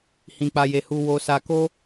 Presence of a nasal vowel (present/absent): present